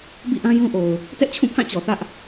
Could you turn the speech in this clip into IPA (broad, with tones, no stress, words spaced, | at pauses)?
bḭ˦˨ʔã˦jũ˦ʔo˨ʊ̯ | tɛ˦ʔt͡ɕʰũ˦˨pʰã˦˨ t͡ɕɔ˨θä˦ʔ